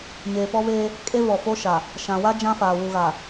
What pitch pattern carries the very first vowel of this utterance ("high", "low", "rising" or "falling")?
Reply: low